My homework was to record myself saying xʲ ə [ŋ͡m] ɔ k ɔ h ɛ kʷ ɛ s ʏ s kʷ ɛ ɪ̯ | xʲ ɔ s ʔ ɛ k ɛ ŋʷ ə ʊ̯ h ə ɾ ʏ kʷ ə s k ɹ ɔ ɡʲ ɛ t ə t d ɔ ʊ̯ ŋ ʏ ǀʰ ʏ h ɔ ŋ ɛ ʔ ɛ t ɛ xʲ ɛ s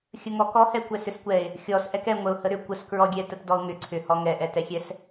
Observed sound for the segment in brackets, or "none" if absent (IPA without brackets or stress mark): ŋ